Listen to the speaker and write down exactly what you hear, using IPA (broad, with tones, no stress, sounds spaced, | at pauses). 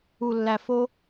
u˨ lː æ˨ f o˦